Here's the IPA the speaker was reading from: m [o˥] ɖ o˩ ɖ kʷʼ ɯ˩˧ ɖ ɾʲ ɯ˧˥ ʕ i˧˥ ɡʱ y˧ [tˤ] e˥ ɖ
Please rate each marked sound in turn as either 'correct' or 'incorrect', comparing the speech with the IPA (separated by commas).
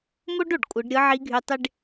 correct, correct